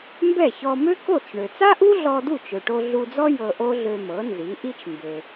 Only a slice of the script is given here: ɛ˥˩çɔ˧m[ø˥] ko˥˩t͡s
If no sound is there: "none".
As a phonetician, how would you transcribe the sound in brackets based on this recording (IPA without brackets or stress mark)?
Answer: ø˥